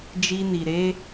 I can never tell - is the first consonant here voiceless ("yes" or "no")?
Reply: no